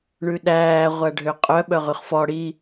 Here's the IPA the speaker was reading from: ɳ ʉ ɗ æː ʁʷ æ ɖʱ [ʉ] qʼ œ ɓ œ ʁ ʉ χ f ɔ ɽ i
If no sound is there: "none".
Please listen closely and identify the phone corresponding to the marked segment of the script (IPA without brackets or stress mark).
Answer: ø